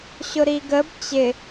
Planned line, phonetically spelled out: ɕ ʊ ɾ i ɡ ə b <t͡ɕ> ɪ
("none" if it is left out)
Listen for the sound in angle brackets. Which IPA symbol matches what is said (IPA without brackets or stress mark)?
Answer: t͡ɕ